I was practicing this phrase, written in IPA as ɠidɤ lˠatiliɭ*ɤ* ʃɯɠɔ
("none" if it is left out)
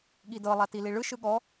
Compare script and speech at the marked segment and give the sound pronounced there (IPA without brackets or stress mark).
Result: ɯ